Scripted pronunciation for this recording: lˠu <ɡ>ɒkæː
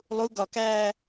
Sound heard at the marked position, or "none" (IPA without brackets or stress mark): ɡ